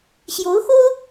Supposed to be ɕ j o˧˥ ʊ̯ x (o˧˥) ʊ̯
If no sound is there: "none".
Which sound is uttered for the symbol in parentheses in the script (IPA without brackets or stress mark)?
o˥